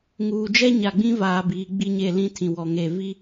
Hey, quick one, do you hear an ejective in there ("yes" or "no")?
no